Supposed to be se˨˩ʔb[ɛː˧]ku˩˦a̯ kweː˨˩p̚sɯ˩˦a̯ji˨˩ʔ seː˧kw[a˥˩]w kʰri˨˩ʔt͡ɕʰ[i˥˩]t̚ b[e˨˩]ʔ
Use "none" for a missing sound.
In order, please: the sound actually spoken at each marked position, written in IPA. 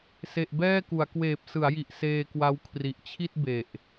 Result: ɛː˥˩, a˦˥, i˥˩, e˨˩

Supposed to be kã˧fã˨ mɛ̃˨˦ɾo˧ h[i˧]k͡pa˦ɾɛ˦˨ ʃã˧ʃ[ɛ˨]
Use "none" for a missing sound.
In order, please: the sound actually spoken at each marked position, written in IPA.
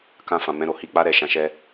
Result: i˧, ɛ˦

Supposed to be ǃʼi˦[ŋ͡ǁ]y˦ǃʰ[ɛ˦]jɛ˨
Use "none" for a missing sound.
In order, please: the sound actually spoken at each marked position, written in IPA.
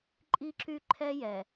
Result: ǁ, ɛ˦

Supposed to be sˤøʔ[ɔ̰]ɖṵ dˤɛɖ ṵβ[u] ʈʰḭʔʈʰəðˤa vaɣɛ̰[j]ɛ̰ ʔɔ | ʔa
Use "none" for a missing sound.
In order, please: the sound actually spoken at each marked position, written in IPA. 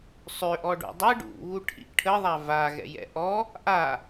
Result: ɔ, u, j

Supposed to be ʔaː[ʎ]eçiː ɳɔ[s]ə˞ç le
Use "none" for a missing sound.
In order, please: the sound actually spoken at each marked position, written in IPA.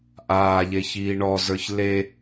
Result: ʎ, z

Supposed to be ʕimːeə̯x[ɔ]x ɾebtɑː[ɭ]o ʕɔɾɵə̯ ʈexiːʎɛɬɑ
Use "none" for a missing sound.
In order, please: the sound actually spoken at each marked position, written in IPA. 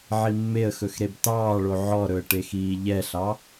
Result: ɵ, ɭ

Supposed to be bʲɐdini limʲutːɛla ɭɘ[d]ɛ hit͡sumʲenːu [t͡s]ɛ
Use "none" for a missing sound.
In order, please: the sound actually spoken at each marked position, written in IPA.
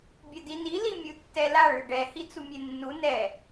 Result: ɖ, n

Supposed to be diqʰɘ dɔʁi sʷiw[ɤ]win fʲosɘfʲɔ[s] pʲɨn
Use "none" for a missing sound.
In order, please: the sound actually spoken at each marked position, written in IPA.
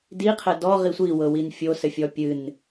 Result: ɤ, none

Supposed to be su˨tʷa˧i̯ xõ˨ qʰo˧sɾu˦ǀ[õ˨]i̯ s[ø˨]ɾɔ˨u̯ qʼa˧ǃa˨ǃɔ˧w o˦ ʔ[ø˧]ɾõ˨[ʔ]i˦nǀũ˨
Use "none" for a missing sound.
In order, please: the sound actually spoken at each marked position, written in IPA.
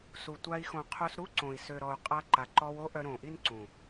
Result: õ˨, ø˨, œ˧, ʔ

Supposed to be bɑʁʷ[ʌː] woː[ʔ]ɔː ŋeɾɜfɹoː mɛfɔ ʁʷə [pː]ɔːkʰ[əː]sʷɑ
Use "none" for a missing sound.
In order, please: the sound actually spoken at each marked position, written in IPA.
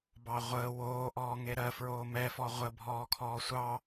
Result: əː, ʔ, bʱ, ɔː

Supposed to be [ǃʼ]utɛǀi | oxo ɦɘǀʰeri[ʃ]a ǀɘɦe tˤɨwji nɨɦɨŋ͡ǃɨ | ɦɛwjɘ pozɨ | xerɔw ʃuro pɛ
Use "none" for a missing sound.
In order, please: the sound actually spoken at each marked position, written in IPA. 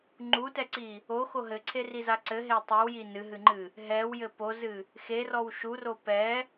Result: ŋ͡ǃ, z

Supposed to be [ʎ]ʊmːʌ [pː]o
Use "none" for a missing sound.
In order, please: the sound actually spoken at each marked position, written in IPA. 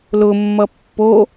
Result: l, pː

